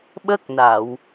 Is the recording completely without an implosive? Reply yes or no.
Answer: no